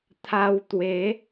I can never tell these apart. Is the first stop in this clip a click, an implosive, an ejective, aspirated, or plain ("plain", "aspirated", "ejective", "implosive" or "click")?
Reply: aspirated